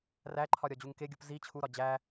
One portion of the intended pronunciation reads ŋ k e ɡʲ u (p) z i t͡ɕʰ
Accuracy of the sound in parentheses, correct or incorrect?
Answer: correct